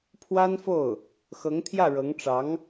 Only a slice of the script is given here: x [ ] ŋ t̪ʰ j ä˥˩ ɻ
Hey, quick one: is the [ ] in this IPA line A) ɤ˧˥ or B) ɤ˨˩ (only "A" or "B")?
A